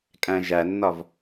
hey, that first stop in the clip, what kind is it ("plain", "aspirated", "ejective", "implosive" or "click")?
ejective